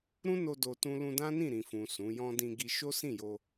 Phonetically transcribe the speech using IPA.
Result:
ɾ ũ˦ n o˧ d o˧ t ũ˦ l ũ˧ d ã˦ n ĩ˦˨ ɾ ĩ˨ f ũ˨ s ũ˨˦ j ɔ̃˦ d ĩ˧ ɡ i˧ ʃ o˦ s ĩ˦˨ j o˧

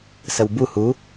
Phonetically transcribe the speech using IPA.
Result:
s ə w b u h u

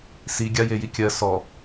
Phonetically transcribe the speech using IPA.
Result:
s i ɡʲ a j e j i kʲ ɜ s ɔ

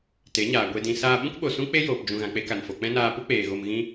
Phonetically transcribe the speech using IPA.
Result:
t e˨˦ ɲ aː˨ ɡʷ e˧ d ĩ˧ s aː˧ ɓ ũ˦ k ɓ o˨ s ũ˦ k͡p e˦ j oː˨ p d͡ʒ ũ˨ ɣ ã˨ k͡p e˧ k a˨ n f o˨ k͡p ɛ̃˦ n aː˧ p u˦ k͡p eː˨ ɣ o˧ m ɣ ĩ˦

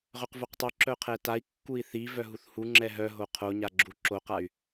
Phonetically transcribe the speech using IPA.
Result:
ʁ œ q v o q tˤ œ ǁ œ qʰ ɛ t a i̯ kː u i̯ θ i v œ ɦ u θ h u ŋ͡ǁ ɛ ɦ œ ɦ o qʰ o ɲ a ɡ͡ǁ u ǁ o q a y̯

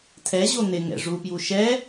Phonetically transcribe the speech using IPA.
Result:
tʰ ɛ ʑ o n̪ ɪ ŋ ɛ̰ ʐ u p j u ʃ ɛ

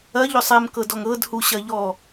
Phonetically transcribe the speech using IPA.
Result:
ɐ ʎ ʏ sˤ ɛ m k ɤ d ɔ ŋ ɤ d h u ɕ ɐ ʎ ɔ

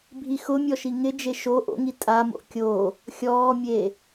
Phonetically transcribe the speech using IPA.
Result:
bʱ i x ʊ mʲ ɔ ʃ i ŋ ɪ d͡ʒ e ʃ o ʔ o̰ ŋ i tʼ a m o̰ kʲ o | xʲ ɔː mʲ e

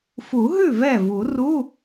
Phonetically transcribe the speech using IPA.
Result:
f u˨˩˦ ɦ ʉ˥˩ v ɛ˥˩ v u˨˩˦ r u˧˥˧

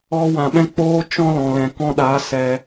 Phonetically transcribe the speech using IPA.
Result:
ɔ˧ w ã˨ ɓ ɛ̃˦ k͡p oː˦ t͡ʃ ɔ̃˦ l ɔ̃˨ l ɛ̃˨ k ɔ̃˧ ɗ aː˨˦ s ɛ˧

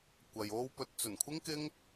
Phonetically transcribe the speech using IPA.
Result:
kʷ ɐ˨ j o˧ w p ɵ˨˥ t̚ t͡s ɵ˨˩ n kʷʰ ɪ˥ ŋ k ɪ˥ ŋ

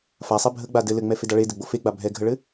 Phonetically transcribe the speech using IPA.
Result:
f a sˤ ɛ bʱ ə ɡ͡b a d ɘ l ɘ ŋ͡m ɛ f e d a ɭ e d ɘ ɡ͡b o f e ɡ͡b a bʱ ɛ ɡʱ ə ɭ ɘ

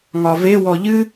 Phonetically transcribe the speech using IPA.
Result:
ŋ ɒ v e w ɔ ʎ ɨ

